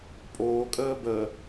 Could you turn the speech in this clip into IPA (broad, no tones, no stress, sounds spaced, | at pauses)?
pʼ oː kʼ əː b ə